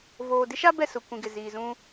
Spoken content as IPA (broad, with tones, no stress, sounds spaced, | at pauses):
v oː˨ d ɪ˦ ʃ a˦ b ɛ˦˨ s ʊ˨ kʷ ĩ˨ ɡ ɪ˨ z iː˨ z ũ˦